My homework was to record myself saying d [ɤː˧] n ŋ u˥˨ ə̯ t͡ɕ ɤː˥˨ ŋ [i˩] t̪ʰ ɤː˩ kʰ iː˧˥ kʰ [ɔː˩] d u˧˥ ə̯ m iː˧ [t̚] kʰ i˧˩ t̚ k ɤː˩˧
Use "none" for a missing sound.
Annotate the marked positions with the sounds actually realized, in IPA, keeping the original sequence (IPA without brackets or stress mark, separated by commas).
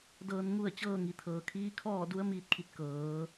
ɤː˧, i˩, ɔː˥˨, t̚